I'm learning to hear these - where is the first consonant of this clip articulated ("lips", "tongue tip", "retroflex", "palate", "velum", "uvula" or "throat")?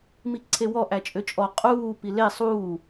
lips